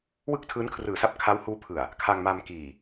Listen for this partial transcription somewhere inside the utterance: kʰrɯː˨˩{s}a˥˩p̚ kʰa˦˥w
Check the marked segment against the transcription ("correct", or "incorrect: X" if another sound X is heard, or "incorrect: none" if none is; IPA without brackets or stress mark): correct